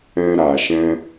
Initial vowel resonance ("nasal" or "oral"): nasal